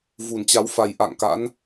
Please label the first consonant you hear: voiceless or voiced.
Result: voiced